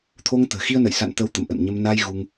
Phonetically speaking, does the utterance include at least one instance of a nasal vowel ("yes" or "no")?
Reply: no